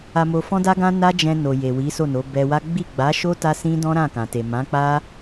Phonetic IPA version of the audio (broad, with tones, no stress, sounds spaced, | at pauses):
a˧ m o˧ f ɔ̃˦ d a˦ ɡ ã˦ n a˦ d͡ʒ ɛ̃˧ n o˨ j e˨ w i˨˦ s o˦˨ n o˨˦ b ɛ˧ w a˦ ɡ͡b i˦˨ ɡ͡b a˨˦ ʃ o˦ t a˦ s ĩ˦ d ɔ̃˦ ɾ ã˦˨ k ã˨ t e˨ m ã˨˦ k͡p a˦